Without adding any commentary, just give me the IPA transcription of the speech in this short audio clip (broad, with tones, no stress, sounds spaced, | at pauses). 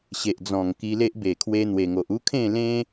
ɕ e˨ ʔ d͡z ɔ̃˨˩ ŋ k i˧ l e˦ ʔ b e˨˩ kʰ w e˧ n̪ w e˨˩ ŋ o˨ ʔ u˦ kʰ ẽ˥˧ l ẽ˦